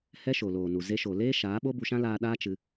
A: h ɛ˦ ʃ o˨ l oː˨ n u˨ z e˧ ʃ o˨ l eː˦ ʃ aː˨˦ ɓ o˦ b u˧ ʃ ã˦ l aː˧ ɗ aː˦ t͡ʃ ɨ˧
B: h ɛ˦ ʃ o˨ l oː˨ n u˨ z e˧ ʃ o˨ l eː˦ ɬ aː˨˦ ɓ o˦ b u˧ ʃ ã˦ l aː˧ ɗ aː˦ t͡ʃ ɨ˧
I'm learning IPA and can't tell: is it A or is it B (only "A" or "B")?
A